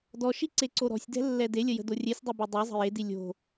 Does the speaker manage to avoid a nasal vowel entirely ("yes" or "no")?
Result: yes